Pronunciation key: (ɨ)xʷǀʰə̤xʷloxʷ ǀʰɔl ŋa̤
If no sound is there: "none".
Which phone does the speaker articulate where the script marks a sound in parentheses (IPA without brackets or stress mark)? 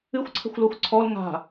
ɨ